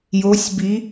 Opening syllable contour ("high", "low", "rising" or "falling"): rising